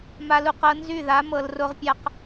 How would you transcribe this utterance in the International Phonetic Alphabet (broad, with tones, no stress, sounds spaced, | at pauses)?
m a˧ l u˧ q ɤ˧ n z y˦˨ ð a˨˦ m ɤ˨ l r o˧ ʁ pʲ a˧ q